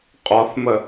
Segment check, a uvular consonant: present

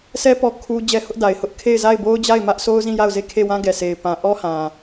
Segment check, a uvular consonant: absent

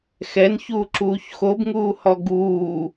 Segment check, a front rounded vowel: absent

